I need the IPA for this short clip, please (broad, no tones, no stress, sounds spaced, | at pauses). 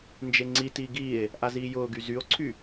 n d͡ʒ e ŋ͡ǀ i t i ɡ iː e̯ | ʔ a z iː j ʊː ɡ y z y o̯ ǀʰ y